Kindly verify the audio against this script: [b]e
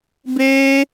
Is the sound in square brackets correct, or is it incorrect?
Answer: correct